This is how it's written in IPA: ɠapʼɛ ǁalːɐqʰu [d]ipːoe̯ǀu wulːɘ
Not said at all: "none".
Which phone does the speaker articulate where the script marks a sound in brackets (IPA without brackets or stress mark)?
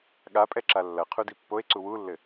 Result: d